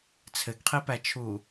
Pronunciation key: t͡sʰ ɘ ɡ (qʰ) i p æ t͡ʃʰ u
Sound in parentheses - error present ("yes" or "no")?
no